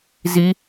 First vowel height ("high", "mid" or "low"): high